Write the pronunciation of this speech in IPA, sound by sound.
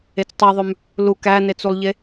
e t͡s tˤ i ðˤ ø m | l u k æ n e t͡s u lˠ ʎ e

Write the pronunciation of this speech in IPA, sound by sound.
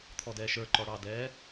t̪ʰ ɔ d ɛː ʃ ə˞ ǃ ɔ ɽ ɑ d ɛː

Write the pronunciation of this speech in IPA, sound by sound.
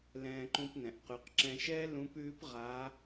l ɛ̃ː˧ ǃ ũ˧ p n ɛ̃˩ ʔ q ʉ˩˧ q ǁ ɛ̃˧ ʃ ɛː˥ l ũ˧˥ p ʉː˧˥ p ʁ a˧˥

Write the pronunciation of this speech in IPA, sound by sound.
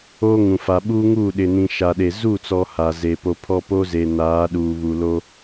o˦ ŋ ũ˨ f a˨ ɓ uː˦ ŋ uː˦˨ ɗ ɪ˨ n ĩ˨ ʃ a˨ ɗ e˨ z u˦˨ t͡s ɔ˨ h a˨ z eː˨ p o˨ pʰ ɔ˦ p o˦ z e˨ n aː˨˦ ɗ uː˨ β u˨ l o˦

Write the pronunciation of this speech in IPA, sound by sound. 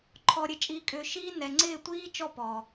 ǃʰ ɔ˨ ɾʲ ɘ˨ t͡ʃʼ iː˨ kʼ ʏː˨ ʃ iː˦ n ɛ˨ ŋ͡ǀ ɪː˦˨ tʷ iː˦ t͡ʃ ɔ˦˨ p ɔ˨

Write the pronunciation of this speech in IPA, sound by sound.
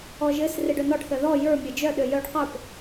ɔ ʒ ɘ s r e ɖ œ n ɔ ɖ θ œ ð ɔ j ə˞ mʲ ə˞ d͡ʒ œ ɗ ø j œ ɖ q ə˞ p

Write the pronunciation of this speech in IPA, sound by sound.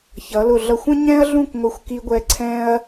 ç ʌ˩˧ l ʊ˧˩ ɮ ʌ˧˩ xʷ ə̃˥ ɲ ɛ̃˥ ɐ̯ ɮ ũ˥˧ k ŋʷ ɪ˧ xʷ k i˧ ɡʷ ɛ˧ ǀʰ ɛ̃˥ ɐ̯

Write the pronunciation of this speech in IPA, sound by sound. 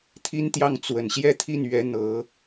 t̪ʰ i˥ n t̪ j ɑ˥˩ ŋ t͡s w ə˨˩ n ɕ j ɛ˥˧ t̪ʰ i˥˩ n ɥ ɛ˧˥ n̪ ɤ˧˥

